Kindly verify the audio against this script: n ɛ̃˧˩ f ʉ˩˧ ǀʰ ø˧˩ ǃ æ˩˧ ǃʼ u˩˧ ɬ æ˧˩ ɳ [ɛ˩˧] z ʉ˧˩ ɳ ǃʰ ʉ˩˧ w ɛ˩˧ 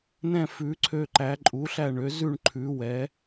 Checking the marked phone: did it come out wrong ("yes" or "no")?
yes